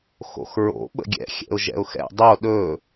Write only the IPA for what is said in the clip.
x o̰ x ɹ o̰ ɓ ə̰ ɡʲ ɛ̰ xʲ ɛ̰ ʊ̯ ʒ ɛ̰ ʊ̯ x ɛ̰ dˤ o ɗ ɵ

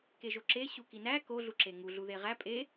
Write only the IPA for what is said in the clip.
k e ʒ o ǁ e ɕ u k i n æ k o ɮ u ǁ e ŋ u ɮ u ð e ʁ æ pʼ e

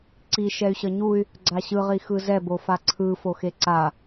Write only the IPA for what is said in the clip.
ǀ i ʃ ɛ y̯ ɕ ʌ ɲ u y̯ | ɡ͡ǀ a ɕ ɯ ʁ i x ɯ z ɛ b o f a ǀʰ ɯ f o x e ǀ a

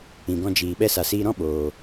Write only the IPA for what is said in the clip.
ĩ˧ ɡ ɔ̃˦ d͡ʒ iː˧ ɓ ɛ˧ s a˨ s iː˧ ɾ ɔ̃˦ ɓ oː˧

